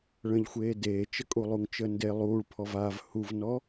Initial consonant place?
retroflex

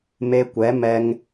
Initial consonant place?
labial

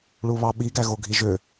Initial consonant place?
retroflex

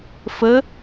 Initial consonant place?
labial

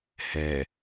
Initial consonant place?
glottal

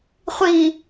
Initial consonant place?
uvular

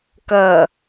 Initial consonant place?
velar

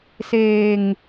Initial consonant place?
alveolar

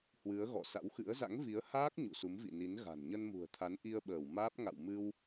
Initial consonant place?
glottal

